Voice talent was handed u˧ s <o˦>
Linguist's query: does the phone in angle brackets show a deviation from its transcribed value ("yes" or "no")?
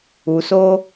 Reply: no